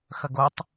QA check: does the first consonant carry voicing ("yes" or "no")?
no